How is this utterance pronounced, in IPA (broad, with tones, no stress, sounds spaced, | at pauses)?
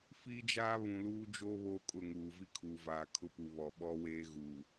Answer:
f iː˦ d͡ʒ aː˦ β ũ˨ l uː˦ d͡ʒ o˦ β oː˦ kʼ ʊ˦˨ ŋ uː˨ v i˦ kʰ uː˨ v aː˨ kʰ ʊ˦ p u˨ β ɔ˨ ɓ ɔ˦ w eː˦ ɣ uː˨